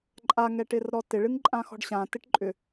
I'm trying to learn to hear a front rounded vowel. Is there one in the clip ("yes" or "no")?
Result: yes